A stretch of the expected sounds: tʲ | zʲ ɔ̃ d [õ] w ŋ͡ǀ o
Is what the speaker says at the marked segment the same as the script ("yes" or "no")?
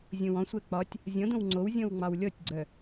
yes